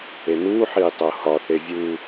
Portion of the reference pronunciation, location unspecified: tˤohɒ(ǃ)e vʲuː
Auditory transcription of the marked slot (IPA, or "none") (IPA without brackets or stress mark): θ